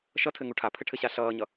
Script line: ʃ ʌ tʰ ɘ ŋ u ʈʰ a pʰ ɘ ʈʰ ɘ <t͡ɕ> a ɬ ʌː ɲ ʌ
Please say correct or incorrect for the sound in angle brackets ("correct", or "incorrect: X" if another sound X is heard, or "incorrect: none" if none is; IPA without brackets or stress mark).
incorrect: ɕ